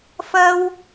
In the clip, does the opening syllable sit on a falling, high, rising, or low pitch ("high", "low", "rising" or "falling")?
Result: high